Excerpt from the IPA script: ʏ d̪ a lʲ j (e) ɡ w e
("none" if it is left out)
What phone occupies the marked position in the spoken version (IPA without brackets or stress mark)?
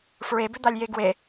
e